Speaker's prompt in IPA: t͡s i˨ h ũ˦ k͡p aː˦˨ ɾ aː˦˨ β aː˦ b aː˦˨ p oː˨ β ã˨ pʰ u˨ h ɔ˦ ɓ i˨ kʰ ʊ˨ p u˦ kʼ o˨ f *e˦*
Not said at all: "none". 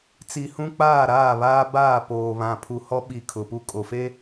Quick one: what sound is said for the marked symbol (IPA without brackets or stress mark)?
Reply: e˦